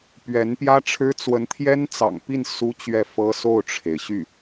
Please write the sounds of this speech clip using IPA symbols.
p ɥ ɛ˧˥ n p j ä˥ ʈ͡ʂʰ ɻ̩˥ t͡s w ə˧˥ n t̪ʰ j ɛ˥ n t͡s ɑ̰˨˩ ŋ p i˥˩ n s u˥ t͡ɕ ɥ ɛ˥˩ f ɤ˥ s o˥˩ ʊ̯ ʈ͡ʂʰ e˩ ɪ̯ ɕ y˥˩

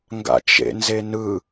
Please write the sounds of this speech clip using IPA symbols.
ŋ ɡ a̰ t͡ʃ ḛ n z e n ɯ

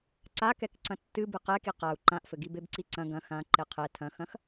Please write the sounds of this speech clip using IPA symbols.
ǀ a k ɛ k ǀ ɐ̃ tː ɨ b ɨ q ɛ k i q a u̯ ǃ ã ʔ f ɘ ɡ i b e b ǀ i ǀ ɐ̃ ɡ ɐ̃ x ã ǃ e qʰ ɛ tʰ ɐ̃ x ɐ̃ x

